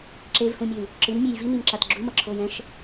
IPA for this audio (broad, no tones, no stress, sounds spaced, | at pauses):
ǁ e v h ũ mʲ ɯ y̯ | ǁ ɯ n mʲ e j v i n i m ǁ a t ɡ͡ǁ u m ʌ ǁʰ oː j ɛ̃ ʃ